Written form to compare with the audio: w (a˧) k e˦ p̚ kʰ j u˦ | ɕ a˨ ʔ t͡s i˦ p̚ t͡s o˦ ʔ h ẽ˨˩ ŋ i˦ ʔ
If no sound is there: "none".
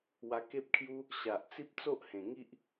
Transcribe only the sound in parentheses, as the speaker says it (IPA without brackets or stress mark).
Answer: a˧